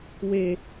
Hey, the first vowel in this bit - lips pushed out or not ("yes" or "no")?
no